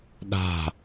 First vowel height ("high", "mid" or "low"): low